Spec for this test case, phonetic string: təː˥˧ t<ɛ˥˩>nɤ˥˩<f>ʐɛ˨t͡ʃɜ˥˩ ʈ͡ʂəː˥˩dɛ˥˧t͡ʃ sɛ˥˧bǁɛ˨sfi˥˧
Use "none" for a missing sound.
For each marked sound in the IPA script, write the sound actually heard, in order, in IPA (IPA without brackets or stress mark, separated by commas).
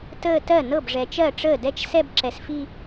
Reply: ɜ˥˩, b